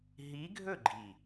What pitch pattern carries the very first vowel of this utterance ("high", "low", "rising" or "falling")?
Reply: rising